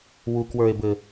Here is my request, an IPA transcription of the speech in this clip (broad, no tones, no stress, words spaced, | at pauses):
wukwə˞e̯bɘ